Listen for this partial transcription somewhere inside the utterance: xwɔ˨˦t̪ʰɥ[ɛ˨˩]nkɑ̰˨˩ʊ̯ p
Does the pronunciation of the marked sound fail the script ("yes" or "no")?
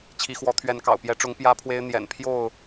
yes